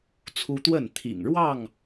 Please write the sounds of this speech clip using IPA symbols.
t͡sʰ u˦ t̪ w ə˥˨ n t̪ʰ ḭ˨˩ ŋ ɻ w ɑ˥˨ ŋ

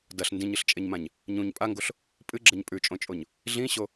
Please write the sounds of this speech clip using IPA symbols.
d ɐ ɬ n d ĩ ɲ ɨ ɬ t͡ʃʼ e ɲ m ã ɲ | ɲ ũ ɲ pʼ a ŋ ɡ o ɬ | pʼ ɨ ɡ͡ǁ ɐ ɲ pʼ ʉ t͡ʃʼ õ t͡ʃʼ o ɲ | ɮ ĩ ɕ o

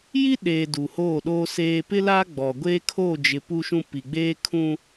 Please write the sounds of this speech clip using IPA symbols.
j i˦ ɗ eː˨ d u˨ h oː˦˨ ɗ oː˦ s eː˦ p ɪ˦ l a˦ ɡ͡b ɔ˨ ɡʷ eː˦ kʰ oː˦˨ d͡ʒ ɪ˨ p u˦ ʃ ũ˦ p i˨ ɡ͡b eː˦ kʰ ũ˦

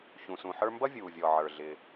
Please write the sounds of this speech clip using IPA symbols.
ç ũ˩ s ũ˩ ħ ə˞˧ m b ʌ˥ vʲ uː˩ vʲ ɔ˩ ʕ ə˞˩ ɮ ɪ˩

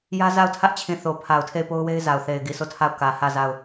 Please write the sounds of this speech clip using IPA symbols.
j ä˦ z a˦˨ ʊ̯ tʰ ä˦ ʔ t͡ɕʰ ĩ˨ θ o˨ pʰ a˨ ʊ̯ tʰ e˦˨ ɪ̯ p o˦ ʊ̯ w e˦ ɪ̯ z a˨ ʊ̯ θ e˨ ɪ̯ ɡ i˨ s o˦˨ tʰ a˦˨ ʊ̯ k ä˨ h ä˦˨ z a˦˨ ʊ̯

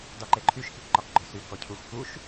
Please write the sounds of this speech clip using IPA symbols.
d ɒ ǃ e ǃʰ y ʃ k i k ǃ ɒ k ɡ͡ǃ ɔ s y k ɔ cʰ u x k u ʃ

